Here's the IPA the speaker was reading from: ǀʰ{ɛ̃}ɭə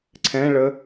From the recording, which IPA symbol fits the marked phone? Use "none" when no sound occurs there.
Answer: ɛ̃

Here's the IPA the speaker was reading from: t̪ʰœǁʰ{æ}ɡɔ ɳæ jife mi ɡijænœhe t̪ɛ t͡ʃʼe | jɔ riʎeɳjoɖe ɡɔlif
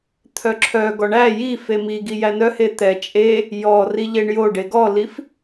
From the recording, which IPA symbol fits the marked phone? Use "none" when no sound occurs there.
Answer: œ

